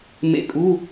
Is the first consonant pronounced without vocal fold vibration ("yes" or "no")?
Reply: no